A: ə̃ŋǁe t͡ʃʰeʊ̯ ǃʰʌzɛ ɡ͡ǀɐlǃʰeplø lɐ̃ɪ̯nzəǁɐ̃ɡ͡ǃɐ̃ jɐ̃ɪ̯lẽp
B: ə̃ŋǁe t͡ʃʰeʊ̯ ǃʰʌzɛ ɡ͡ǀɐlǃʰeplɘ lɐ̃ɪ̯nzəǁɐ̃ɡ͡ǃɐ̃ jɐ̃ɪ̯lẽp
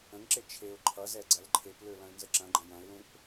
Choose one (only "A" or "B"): A